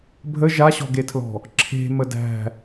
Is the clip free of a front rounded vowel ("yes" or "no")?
yes